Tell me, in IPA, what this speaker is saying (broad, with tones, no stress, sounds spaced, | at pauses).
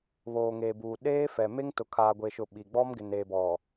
β oː˨ ŋ eː˨ b uː˨ ɗ eː˦ f ɛ˨ m e˦ ŋ t ʊ˨ kʰ aː˨ ɡʷ e˨ ʃ ʊ˨ ɓ i˨ ɡ͡b ɔ˦ m ɡ ɪ˨ n eː˨ b ɔ˨